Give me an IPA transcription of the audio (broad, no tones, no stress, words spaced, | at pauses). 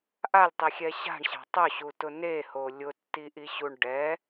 ʔalʲtˤixʲɛ ɕa̤ɳɕa̤ tˤʊɕutʊ neho lʲʊtːiʔiɕuɳ ɖɛ